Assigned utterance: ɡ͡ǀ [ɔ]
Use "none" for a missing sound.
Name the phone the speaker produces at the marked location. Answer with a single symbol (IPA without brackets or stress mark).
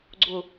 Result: ʊ